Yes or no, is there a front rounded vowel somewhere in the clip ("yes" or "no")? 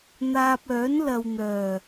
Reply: yes